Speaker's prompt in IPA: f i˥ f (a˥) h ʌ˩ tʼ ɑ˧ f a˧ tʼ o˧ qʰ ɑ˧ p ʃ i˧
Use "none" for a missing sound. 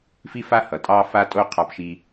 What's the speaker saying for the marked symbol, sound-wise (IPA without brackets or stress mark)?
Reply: a˥